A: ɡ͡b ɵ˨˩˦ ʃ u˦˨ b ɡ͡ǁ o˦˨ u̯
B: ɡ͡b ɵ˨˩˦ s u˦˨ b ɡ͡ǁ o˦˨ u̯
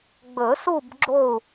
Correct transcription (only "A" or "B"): B